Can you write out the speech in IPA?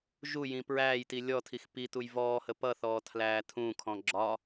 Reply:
ʒ u j ĩ p ɹ æː j t i lʲ ɔ tʰ i x p i t u j v ɔː h ə p ʌ θ ɔː tʰ l æː tʰ ũ kʰ ɔ̃ ɡ͡ǁ ɒ

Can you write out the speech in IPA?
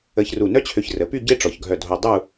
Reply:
ə˧ ç r u˧˩ n œ˥ t͡ɕʰ ø˧ ç r ə˩˧ p y˥˧ ɟ e˥ ʈ͡ʂ ɔ˩˧ ç ɡʱ œ˧˩ dʱ o˧ dˤ u˥˧

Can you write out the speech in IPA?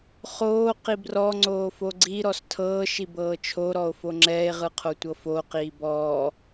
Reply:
χ oː q i b r ɔ ŋ͡ǀ oː f o ɡ͡ǀ i ɾ ɔ s tʰ ɤː ʃ i b ɤː t͡ʃʰ o ɾ ɔ o̯ f o ŋ͡ǁ ɛː e̯ ʁ ɯ qʰ o tʷ ɤ f o q iː b ɔː

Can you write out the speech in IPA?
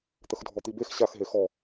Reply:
t̪ ə x dʱ ɔ t̪ i b e x ɕ a x ɦ e x ɔ

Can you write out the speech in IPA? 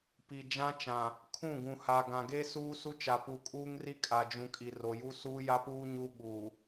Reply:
p i˨ d͡ʒ ã˦ t͡ʃ ã˨ | kʰ ũ˦˨ ɡ ũ˨ h a˨ ɡ ã˨ ɡ e˦ s uː˦ s u˦ t͡ʃ a˨ p u˨ kʼ uː˦ ŋ r i˦ kʼ a˨ d͡ʒ ũ˨ kʼ i˨ r o˨ j u˦ s uː˦ j a˦ p uː˦ ɲ u˦ ɓ u˨

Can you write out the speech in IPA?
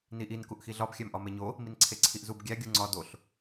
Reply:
n i ʔ i n k u ʔ x i ɮ ɒ b xʲ æ m ʔ ɒ m e ɲ o | m i n ǀʰ e ǀʰ i ʔ z u b ɡʲ æ ɡʲ u ŋ͡ǀ ɒ d o ɬ

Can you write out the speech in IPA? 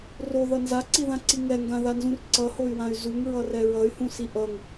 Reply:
r o ð ʌ n z a ǀ i ð ã ǀ i ŋ ɛ ŋ ɡ ã ð a n z ũ r ǀ ʌ h o y̯ w ã y̯ z u ŋ ɹ ʌ r ɛ ɹ ʌ y̯ h ũ s i ʔ ʌ ŋ

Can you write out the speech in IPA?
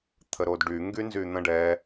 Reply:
t̪ʰ ə ɾ o d ɖ y ŋ ɡ y n z y n̪ ə̃ ɖ ɛ

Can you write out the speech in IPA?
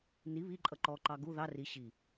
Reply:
n i β i ǃʼ ʌ ǃ ɔ ǃ ɑ ɡ u ð ɑ r i ɕ i

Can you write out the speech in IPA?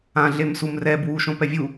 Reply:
ã ɮ e m s u m r ɛ b w u ʃ õ p ɛ vʲ u

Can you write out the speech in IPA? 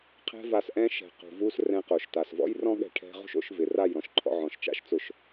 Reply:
qʰ ɛ̤˦ v a˧ s ʔ ɛ̃˦ ʃ ɛ̤˨ q ṳ˨ v u˦ s r ɛ̃˧ q o˨ ʃ t a˨ s v ɔ̰˦ j r ɔ̃˦ ɠ ɛ̤˧ ʈʰ ɛ̤˧ ʁ ṳ˦ ʃ o̰˨˦ ʃ v ɪ˨ r a˦˨ j ɾ ɔ̃˦ ʃ ǃʰ ɔ̰˧ ʕ ɔ̃˨ ʃ t͡ʃ a̰˧ ʃ t͡s ʊ˨ ʃ

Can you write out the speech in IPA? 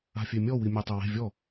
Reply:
a̤ fʲ e mʲ ɔ w i mʲ e tˤ e w e̤ vʲ ɔ

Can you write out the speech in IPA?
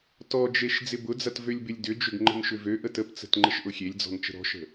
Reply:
t ɔ d͡ʒ e ʃ d͡z ɪ b ʊ d͡z ɐ t v ø lʲ b ɪ lʲ d ʏ d͡ʒ ʏ ɡ ŋ͡ǃ ə̤ n ʃ ʏ v ø ʔ ə t ə p t͡s ə̤ t ŋ͡ǃ ə ʃ ʔ ʊ xʲ e lʲ d͡z ɔ̤ n t͡ʃ ə̤ ɾ ɔ̤ ʃ ə̤

